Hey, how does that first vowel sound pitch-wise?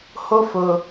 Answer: high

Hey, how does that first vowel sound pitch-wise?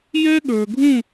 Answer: high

